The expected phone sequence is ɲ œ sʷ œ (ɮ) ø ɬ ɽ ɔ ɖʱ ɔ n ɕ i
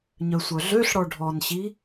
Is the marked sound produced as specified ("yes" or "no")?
yes